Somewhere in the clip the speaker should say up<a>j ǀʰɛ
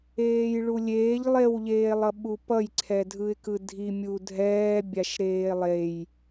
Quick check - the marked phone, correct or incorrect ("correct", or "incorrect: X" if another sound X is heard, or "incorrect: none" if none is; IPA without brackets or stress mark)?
incorrect: ʌ